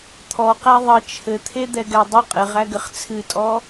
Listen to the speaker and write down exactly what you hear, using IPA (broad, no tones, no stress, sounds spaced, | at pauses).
t̪ʰ ɔ q æ ðˤ ə t͡ʃʰ ɘ t̪ʰ e d̪ ɛ ɡ ɛ dˤ ə qʼ ɘ ʁ æ ɡ ɘ χ t͡sʰ ɨ tʼ ɔ